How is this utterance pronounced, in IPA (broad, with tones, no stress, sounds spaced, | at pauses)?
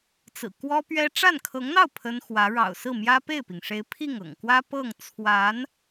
t͡s ɹ̩˨˩ k w ɔ˥ p ɥ ɛ˥ ʈ͡ʂ a˥˩ n kʰ ɤ˧˥ ŋ n̪ ɑ˥˩ ʊ̯ pʰ ə˥ n x w ä˧˥ ɻ ɑ̰˨˩ ʊ̯ s ɹ̩˥˩ m j ä˥ p e˥˩ ɪ̯ p i˩ ŋ ʂ e˧˥ ɪ̯ pʰ i˥˩ ŋ ɤ̰˨˩ ŋ k w ä˥ p ɤ˥˩ ŋ t͡sʰ w a˧˥ n